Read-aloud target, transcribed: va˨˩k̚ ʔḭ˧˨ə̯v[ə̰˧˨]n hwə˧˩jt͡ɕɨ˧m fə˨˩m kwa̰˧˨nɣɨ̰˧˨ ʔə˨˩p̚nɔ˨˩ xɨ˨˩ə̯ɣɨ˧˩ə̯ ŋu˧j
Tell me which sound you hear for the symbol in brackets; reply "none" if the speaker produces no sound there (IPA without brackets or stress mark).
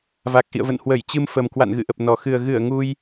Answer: ə̰˧˨